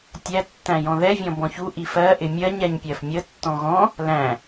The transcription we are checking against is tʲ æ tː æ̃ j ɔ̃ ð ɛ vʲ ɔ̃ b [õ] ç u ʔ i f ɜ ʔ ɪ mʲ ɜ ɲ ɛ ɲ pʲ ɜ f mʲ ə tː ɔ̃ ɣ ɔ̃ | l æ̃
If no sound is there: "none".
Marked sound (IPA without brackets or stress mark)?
ɔ̃